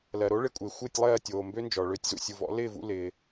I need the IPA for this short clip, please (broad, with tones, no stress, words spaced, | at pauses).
lɜ˩ɾo˦˥ɭɪ˨˦kʷʼɪː˩ xʷɪː˥˨tʲlˠɜː˥˨tʲoː˩ mbø˦˥nd͡ʒɔ˩ ɭø˨˦tʲzṵ˩sʲu˩ vɔ̰˨˦lɪː˥˨vṵ˥˨ lɪː˩